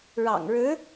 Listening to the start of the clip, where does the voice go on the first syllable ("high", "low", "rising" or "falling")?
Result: low